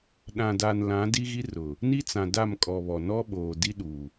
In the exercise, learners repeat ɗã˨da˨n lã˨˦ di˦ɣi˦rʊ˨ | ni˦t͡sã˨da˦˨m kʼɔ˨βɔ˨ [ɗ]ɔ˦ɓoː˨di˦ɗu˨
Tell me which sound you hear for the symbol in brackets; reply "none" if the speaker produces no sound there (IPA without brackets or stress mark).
n